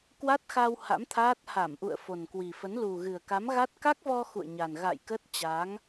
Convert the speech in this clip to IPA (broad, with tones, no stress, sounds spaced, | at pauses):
k w a˦˥ t̚ x a˧ w h a̰˧˥ m t̪ʰ aː˦˥ t̚ h a˧˩ m ʔ ṵ˧˨ ə̯ f o˨˩ n k w i˨˩ f ə˨˦ n l u˨˩ ɣ ɨ˨˩ ə̯ k a˨˦ m ɣ a˦˥ t̚ k a˦˥ k̚ v ɔ˧ x ṵ˧˨ ə̯ ɲ a˨˩ n ɣ a̰˧˨ j k ə˦˥ t̚ t͡ɕ a˨˦ ŋ